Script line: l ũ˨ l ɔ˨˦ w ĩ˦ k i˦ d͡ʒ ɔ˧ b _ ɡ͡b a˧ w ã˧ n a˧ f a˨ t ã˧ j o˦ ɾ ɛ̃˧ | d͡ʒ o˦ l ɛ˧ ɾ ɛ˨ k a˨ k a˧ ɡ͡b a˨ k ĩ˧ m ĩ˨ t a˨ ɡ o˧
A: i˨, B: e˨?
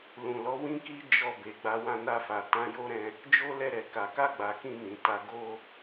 B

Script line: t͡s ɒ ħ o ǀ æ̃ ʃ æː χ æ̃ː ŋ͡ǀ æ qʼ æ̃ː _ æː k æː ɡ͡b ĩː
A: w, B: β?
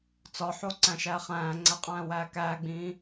A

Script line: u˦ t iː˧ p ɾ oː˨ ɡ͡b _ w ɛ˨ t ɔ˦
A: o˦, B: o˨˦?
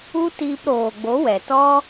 B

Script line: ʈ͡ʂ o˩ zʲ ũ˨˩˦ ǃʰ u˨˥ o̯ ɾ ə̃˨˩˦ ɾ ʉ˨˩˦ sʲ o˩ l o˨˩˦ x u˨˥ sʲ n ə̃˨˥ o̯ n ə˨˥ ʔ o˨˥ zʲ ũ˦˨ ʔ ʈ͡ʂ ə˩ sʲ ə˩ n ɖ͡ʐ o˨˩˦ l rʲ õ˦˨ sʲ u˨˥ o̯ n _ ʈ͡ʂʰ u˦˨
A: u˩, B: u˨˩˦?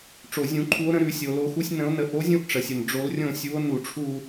B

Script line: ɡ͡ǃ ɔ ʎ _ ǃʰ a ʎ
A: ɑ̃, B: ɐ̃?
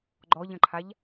B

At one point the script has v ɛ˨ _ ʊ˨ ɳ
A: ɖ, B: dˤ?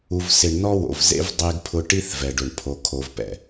A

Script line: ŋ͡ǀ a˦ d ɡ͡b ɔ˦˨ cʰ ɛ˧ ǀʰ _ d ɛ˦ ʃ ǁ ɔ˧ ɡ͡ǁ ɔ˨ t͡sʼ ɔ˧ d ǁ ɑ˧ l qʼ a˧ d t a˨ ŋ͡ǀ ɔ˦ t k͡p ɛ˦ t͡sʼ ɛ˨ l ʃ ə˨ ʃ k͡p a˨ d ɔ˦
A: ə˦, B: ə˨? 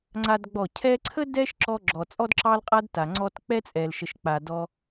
A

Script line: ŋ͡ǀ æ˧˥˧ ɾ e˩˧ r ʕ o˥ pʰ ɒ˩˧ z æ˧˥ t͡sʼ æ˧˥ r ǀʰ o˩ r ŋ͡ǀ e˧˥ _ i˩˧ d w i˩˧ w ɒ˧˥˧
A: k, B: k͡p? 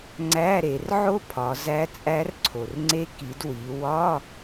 A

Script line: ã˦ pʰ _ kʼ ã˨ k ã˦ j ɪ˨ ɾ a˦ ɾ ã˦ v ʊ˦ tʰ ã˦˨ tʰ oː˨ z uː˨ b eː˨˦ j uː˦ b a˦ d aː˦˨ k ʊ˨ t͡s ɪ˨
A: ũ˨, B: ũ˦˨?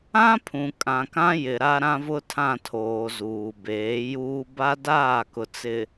A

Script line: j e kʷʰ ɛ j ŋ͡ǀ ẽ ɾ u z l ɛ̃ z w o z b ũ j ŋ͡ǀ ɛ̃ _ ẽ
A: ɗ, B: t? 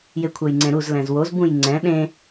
A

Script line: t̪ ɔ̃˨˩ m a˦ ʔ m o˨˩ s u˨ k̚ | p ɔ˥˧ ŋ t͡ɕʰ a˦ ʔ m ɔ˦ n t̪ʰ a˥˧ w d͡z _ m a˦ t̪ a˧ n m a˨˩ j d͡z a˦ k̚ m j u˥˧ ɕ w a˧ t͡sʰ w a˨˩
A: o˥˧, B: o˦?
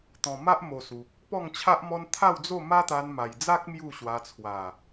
A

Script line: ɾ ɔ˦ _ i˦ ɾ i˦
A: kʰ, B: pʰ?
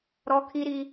A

